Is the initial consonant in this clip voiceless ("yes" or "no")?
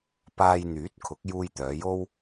yes